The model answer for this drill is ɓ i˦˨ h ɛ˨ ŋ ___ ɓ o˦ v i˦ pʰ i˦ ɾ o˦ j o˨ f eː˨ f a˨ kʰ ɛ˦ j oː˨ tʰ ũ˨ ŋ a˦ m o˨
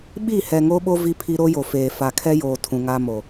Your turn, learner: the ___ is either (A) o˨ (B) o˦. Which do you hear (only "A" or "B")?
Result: B